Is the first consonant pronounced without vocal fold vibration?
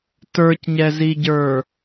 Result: yes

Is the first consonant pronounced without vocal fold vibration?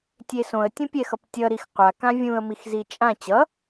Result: yes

